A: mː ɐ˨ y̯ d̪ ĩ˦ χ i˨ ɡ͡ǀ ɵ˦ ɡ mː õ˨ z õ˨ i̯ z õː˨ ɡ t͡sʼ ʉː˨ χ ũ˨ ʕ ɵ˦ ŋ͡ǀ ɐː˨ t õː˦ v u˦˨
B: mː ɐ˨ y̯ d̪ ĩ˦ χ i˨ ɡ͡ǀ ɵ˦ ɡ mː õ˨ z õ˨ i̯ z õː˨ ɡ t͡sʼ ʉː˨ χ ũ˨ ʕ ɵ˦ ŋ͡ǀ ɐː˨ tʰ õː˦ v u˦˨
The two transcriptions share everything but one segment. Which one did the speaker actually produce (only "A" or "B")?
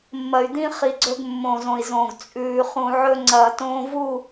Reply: A